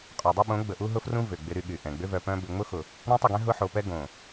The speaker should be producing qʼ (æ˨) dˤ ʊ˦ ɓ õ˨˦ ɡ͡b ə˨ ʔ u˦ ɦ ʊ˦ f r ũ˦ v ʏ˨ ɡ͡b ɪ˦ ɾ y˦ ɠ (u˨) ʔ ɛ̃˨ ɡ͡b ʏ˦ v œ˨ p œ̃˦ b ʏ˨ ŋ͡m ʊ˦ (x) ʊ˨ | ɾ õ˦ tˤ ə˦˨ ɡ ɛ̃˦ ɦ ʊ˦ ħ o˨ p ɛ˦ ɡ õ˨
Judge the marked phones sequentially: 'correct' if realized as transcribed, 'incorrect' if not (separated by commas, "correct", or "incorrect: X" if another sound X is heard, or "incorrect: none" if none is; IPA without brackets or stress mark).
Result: incorrect: œ˨, incorrect: y˨, correct